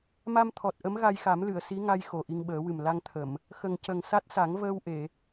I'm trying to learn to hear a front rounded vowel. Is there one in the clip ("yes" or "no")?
no